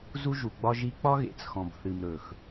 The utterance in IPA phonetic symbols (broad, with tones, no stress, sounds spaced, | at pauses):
z u˦ ʒ u˨ ɡ͡b ɒ˦ ʒ i˦ k͡p ɒ˦ ɣ ḛ˨ t͡s x ɔ̃˨ b θ ɨ˨ m ɾ ɵ˨ x